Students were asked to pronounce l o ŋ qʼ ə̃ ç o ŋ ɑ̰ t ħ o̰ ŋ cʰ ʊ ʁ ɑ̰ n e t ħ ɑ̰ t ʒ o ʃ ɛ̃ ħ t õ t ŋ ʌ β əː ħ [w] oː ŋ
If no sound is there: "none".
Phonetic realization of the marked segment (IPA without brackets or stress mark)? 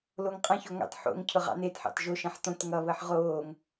ʁ